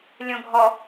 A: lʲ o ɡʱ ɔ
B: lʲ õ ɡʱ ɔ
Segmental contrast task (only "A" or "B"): B